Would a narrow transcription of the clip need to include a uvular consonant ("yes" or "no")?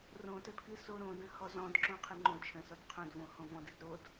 yes